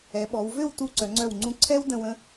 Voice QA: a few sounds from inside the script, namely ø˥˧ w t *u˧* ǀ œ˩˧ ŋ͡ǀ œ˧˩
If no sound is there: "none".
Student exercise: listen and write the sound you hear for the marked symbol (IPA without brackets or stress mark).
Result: u˧